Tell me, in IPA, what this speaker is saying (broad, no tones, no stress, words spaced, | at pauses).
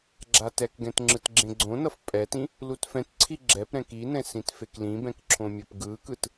ɡ͡ǁatɛkɡɛ̃t ŋ͡ǁɯtɡ͡ǁẽɡ͡ǀõnʌf pʼɛtĩ | lutfɛ̃tǀʰi ɡ͡ǁɛpɾɛ̃ kinɛ̃ sĩtfeklĩbɛ̃k ǁʰõmʲʌpɡɯkɯt